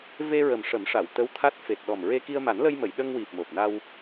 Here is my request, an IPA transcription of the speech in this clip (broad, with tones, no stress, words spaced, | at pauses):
ve˧ɹə˨˩m ʂə˨˩˦mʂa˨˩˨wt̪ə˧˥w t̪ʰa˦˥t̚ fe˨˩t̚ɗɔ˨˩mɹe˧ ki˧ə̯ma˨˩˦nlə˧jmə˨˩˨j ɗə˧ŋwi˨˩p̚mo˨˩p̚na˧w